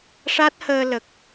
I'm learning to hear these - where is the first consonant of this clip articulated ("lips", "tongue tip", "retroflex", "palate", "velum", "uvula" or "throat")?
retroflex